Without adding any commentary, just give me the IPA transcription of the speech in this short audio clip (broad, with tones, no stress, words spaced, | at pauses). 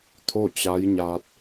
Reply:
t̪ʰo˥˨t͡ɕa˧˥jɲaː˧t̚